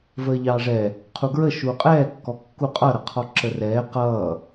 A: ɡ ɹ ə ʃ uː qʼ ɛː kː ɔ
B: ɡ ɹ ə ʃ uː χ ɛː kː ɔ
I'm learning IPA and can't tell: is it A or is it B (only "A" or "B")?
A